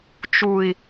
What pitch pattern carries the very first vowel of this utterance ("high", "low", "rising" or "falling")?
low